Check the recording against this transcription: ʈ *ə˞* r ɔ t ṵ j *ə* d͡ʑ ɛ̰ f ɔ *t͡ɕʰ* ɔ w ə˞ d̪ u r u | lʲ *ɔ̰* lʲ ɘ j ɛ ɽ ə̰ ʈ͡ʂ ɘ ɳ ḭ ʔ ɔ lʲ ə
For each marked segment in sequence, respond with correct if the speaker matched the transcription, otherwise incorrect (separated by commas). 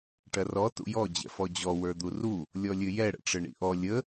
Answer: incorrect, incorrect, incorrect, incorrect